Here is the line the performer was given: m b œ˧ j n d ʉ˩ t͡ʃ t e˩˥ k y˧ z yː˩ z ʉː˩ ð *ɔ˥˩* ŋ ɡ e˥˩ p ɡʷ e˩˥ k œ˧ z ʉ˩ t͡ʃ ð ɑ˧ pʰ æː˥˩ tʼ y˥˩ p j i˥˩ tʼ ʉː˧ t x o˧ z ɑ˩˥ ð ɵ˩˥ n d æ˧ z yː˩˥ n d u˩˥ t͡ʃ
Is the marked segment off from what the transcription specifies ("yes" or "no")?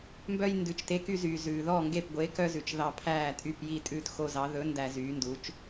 no